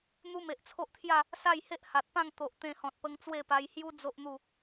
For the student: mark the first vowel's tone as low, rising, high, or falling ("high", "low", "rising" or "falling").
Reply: high